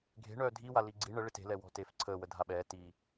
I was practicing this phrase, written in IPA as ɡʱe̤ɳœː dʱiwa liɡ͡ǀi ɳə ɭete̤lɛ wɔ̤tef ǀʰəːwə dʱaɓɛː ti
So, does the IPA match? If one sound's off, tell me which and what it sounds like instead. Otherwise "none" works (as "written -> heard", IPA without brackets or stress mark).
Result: none